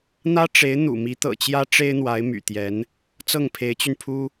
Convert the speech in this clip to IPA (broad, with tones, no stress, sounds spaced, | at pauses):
n̪ ä˥ ʈ͡ʂ e˧˥ ɪ̯ n̪ ṵ˨˩ m i˧˥ t̪ ɤ̰˨˩ t͡ɕ j ä˥ ʈ͡ʂ e˥ ɪ̯ n̪ w a˧˥ ɪ̯ m y̰˨˩ t̪ j ɛ˧˥ n | t͡s ɤ˥˩ ŋ pʰ e˧˥ ɪ̯ t͡ɕ y˧ n pʰ u˥